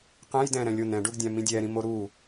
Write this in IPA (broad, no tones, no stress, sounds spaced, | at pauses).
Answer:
q ɛ̃ j d ɛ̃ ɾ ɛ̃ lʲ o n ɛ̃ ɖ u ɡ dʲ ã m ĩ dʲ ɛ ɾ ĩ m o ɾ u